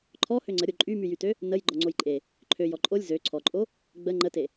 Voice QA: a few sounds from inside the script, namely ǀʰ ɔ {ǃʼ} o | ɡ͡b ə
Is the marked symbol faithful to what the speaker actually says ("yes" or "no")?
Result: yes